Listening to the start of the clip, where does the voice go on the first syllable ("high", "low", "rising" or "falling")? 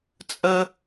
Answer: high